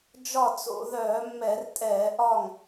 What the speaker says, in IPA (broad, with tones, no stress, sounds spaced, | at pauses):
d͡ʒ ɒ˥˩ t͡s o̰˧˩˧ ð œː˧˩˧ mː ɛ˧˩˧ r tʼ ɛː˧˩˧ ʔ ɒ˥˩ ŋ